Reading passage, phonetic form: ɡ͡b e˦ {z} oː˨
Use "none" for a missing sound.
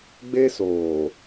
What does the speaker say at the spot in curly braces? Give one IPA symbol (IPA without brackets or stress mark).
s